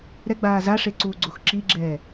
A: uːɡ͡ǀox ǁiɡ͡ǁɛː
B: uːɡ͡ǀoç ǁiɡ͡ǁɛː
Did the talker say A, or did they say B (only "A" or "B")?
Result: A